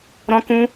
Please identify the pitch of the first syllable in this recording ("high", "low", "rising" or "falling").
high